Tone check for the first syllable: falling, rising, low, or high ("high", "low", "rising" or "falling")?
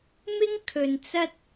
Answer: high